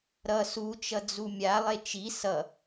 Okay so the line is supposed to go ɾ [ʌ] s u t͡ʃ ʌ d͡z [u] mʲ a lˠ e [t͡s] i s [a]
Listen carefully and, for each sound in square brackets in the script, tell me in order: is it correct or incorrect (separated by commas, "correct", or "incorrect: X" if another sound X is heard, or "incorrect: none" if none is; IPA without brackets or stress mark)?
correct, correct, incorrect: t͡ʃ, incorrect: ʌ